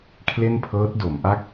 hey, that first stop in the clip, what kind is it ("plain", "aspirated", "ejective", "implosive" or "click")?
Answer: aspirated